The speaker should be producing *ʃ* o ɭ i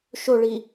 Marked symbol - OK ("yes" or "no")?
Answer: yes